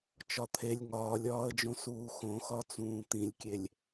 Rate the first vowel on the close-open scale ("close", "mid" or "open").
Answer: open